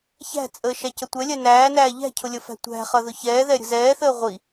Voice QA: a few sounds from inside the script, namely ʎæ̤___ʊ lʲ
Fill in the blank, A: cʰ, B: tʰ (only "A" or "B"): A